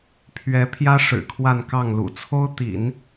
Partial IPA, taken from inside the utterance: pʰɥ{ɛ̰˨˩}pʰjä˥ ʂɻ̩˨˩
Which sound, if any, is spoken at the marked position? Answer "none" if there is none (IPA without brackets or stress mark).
ɛ˧˥